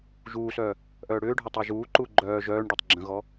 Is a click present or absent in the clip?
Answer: present